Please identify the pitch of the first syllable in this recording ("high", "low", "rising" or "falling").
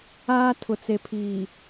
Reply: high